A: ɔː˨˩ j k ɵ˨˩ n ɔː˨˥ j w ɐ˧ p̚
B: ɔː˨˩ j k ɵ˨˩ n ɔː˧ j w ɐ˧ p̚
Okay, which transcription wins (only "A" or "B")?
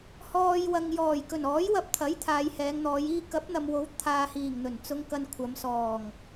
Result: A